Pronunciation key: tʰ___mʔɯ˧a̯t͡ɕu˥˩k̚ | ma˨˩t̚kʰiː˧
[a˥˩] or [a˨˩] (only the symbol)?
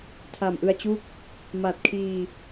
a˨˩